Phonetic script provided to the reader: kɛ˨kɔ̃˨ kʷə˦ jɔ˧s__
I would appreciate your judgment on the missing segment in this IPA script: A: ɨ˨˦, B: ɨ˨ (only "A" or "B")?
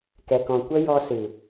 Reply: B